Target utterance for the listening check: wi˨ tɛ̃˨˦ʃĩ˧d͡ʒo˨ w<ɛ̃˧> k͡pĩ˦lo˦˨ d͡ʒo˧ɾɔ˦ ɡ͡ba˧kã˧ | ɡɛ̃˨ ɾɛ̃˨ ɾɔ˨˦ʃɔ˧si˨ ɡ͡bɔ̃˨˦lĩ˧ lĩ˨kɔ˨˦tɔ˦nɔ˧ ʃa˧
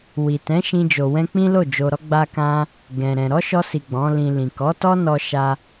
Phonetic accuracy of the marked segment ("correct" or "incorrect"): correct